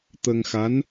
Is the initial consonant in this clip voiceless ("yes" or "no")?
yes